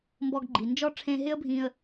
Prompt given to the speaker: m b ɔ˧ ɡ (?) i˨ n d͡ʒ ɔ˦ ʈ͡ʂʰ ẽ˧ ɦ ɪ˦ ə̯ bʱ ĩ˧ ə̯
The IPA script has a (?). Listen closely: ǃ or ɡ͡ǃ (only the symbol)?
ɡ͡ǃ